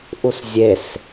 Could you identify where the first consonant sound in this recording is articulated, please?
glottal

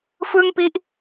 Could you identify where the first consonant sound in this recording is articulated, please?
labial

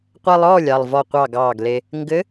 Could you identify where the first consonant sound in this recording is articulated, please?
uvular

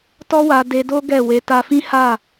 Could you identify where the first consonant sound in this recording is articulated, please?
alveolar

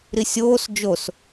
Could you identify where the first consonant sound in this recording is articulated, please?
alveolar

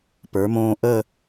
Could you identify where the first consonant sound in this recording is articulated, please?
labial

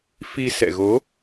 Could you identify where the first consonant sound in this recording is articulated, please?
labial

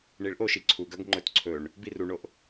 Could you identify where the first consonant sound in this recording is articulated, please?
retroflex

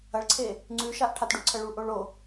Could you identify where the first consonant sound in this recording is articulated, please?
retroflex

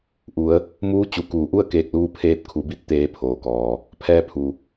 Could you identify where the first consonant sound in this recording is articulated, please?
glottal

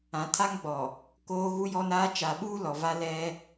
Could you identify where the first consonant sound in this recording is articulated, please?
alveolar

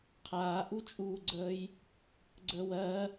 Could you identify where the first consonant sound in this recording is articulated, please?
uvular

